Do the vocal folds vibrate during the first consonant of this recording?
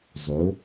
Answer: yes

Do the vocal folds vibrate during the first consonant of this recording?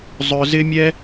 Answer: yes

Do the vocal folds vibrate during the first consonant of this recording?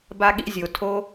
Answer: yes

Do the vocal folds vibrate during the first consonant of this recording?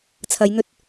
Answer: no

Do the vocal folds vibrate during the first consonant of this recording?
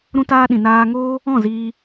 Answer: yes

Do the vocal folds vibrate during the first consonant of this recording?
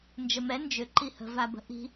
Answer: yes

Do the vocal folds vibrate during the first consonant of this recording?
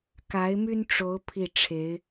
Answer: no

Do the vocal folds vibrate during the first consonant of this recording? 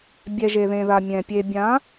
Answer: yes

